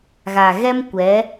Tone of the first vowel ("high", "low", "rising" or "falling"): low